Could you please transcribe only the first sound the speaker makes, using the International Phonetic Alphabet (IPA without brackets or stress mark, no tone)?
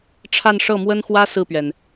ʈ͡ʂʰ